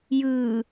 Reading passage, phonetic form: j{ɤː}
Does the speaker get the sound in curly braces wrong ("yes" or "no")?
yes